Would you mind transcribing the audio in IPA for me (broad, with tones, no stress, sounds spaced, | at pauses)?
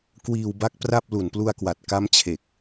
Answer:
k w iː˧ w b a˦˥ k̚ p r a˥˩ p̚ l u˨˩ n p l u˧ a̯ k w a˨˩ t̚ k a˦˥ m t͡ɕʰ e˨˩ k̚